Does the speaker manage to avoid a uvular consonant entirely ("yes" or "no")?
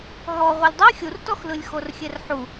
no